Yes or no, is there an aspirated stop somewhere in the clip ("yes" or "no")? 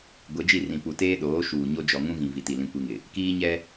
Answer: no